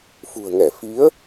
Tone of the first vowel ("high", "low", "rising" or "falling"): low